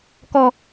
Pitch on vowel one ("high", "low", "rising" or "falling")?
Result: low